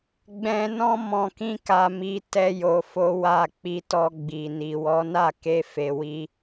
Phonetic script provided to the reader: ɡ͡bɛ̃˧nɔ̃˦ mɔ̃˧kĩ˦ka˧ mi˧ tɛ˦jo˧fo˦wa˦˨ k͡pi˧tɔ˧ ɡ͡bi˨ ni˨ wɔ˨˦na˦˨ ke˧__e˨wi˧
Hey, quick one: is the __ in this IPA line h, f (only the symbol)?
f